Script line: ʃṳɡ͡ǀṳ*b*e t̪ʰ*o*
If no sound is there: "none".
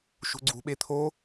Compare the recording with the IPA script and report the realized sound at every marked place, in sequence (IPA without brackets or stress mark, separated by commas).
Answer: ɓ, o